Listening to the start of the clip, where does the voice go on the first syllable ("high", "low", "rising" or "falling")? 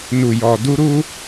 low